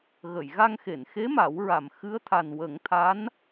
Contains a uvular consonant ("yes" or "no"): no